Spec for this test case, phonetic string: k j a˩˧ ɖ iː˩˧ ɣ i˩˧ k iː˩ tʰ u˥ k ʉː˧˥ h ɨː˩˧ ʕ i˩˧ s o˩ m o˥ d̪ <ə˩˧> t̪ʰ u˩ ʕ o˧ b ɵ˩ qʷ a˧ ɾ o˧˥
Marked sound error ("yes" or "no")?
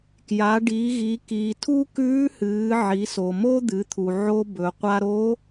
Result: yes